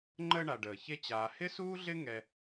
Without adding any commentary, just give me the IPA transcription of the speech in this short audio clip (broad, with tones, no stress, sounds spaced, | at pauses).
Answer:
ŋ͡ǃ əː˦ ɳ a˨ ɖ əː˩ ç e˦ t͡ɕ aː˨ h ɪ˥ s uː˥ ɮ ɪ˥ ŋ ɛ˦